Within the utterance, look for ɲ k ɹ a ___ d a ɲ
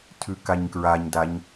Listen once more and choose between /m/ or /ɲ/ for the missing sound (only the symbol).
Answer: ɲ